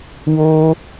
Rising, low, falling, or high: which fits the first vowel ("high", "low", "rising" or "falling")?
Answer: high